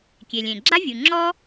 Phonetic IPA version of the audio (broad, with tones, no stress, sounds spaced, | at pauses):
kʲ e˩ lʲ ẽ˩ ɡ͡ǁ a˥ vʲ u˩ ŋ͡ǁ ɔ˥